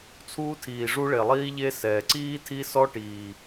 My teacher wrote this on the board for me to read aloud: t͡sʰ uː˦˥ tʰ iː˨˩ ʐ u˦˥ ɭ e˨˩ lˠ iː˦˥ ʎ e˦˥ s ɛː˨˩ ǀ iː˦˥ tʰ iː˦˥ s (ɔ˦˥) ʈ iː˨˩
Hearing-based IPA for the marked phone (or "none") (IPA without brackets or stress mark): ɔ˦˥